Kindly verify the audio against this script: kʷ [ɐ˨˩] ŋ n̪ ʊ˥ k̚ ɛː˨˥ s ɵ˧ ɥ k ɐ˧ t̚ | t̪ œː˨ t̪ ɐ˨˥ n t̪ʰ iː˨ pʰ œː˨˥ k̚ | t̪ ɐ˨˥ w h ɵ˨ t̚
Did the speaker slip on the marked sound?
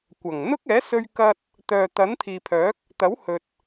no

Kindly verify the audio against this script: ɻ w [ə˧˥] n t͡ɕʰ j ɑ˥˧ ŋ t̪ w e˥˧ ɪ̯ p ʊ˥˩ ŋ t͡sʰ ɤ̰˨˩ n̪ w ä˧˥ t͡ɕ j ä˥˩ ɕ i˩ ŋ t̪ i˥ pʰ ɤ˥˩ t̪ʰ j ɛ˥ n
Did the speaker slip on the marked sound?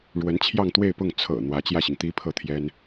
no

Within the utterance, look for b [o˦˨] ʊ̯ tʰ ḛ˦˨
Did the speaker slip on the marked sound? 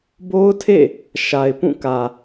yes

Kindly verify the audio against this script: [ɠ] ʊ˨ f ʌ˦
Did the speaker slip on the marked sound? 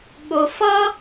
no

